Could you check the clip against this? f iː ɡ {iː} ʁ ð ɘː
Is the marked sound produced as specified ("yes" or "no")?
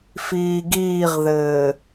yes